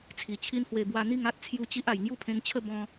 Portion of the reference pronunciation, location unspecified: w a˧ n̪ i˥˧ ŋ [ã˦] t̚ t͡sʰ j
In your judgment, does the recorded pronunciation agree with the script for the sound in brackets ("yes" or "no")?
no